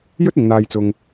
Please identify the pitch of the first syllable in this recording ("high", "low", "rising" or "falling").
high